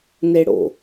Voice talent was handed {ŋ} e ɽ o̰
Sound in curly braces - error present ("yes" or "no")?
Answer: yes